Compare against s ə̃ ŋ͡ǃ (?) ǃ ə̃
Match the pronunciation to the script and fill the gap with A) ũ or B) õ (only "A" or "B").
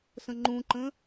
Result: A